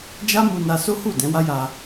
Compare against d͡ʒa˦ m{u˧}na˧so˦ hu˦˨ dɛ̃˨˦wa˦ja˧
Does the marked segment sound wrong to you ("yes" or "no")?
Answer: no